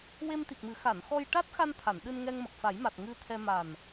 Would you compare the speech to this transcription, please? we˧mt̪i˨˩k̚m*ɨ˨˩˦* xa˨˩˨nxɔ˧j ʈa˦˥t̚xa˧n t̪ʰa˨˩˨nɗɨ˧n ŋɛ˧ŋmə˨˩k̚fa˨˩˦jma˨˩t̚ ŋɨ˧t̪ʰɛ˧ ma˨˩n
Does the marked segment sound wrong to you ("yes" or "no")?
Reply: no